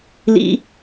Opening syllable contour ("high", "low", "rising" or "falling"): high